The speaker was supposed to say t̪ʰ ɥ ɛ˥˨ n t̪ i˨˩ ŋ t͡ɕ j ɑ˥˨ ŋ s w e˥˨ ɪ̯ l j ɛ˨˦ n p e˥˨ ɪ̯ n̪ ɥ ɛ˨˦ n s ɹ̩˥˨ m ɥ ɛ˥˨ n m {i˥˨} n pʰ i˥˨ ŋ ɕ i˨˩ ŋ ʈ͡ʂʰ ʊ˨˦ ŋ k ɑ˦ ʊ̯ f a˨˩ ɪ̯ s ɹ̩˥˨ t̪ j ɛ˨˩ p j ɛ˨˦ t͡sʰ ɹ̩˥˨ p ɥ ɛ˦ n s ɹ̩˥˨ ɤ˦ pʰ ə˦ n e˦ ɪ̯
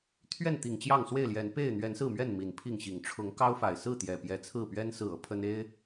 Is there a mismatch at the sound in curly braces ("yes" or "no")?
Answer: yes